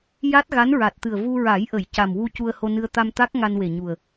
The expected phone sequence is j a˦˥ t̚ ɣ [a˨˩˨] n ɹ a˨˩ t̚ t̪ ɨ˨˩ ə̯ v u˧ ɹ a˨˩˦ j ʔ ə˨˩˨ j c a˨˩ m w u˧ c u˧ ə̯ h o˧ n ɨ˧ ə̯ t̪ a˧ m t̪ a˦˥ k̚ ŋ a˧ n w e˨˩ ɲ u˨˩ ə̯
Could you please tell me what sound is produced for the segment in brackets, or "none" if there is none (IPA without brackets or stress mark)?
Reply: a˧˥